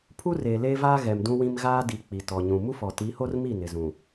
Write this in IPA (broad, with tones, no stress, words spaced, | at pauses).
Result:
pʰu˦reː˨ leː˦vaː˦ ɣɛ˨mdũ˦wĩ˦m ɣaː˦di˨ k͡pi˨tɔ˨ɲũ˨ mu˦fɔ˨ti˨˦ho˦r mi˦˨nɪ˨ zũ˨